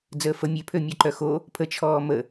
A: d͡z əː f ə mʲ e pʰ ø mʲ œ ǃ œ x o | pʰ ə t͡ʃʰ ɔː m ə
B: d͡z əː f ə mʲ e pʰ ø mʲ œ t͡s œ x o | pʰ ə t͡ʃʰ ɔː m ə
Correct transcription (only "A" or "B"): A